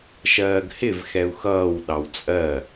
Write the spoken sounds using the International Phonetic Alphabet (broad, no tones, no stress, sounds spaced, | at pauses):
ʃ ɜː ɡ h ɪ v x ɛ u̯ x ʌː w ɗ ɑ w t͡sʼ ɜ